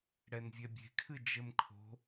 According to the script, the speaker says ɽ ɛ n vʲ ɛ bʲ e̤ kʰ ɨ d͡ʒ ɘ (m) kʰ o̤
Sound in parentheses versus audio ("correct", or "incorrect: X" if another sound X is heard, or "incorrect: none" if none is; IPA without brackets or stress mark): correct